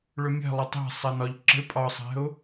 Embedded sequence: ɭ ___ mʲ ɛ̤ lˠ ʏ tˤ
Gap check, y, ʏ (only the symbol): ʏ